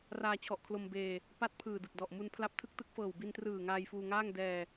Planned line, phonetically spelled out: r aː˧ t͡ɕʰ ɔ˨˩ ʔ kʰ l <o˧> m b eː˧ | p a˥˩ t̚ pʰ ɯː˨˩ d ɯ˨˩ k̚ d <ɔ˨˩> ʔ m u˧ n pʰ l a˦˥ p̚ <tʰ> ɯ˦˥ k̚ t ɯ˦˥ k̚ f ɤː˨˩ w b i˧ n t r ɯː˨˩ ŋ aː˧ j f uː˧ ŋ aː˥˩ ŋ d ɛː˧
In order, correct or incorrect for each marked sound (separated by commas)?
correct, correct, correct